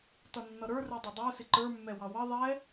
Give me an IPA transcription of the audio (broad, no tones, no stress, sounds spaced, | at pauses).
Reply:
t ʌ nː ʌ ɾ ə˞ r ɛ dˤ ʊ dˤ ə˞ s ɪ ǃ ə˞ mː ɛ w ɑ w ʌ ðˤ ɛ